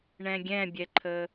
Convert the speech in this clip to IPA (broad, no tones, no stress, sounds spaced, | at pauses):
ɳ ɛ̃ ɡʲ ɛ̃ bʲ ɛ ǃʰ ə